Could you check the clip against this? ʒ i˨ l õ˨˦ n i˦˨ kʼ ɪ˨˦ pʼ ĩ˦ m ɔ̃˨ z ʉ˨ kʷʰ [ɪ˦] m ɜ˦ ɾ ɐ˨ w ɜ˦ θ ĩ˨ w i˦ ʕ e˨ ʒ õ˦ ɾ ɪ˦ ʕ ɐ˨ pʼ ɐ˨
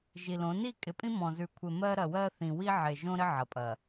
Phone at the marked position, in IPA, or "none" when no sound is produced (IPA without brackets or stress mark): ɪ˨